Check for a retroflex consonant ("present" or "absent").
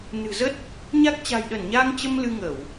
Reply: absent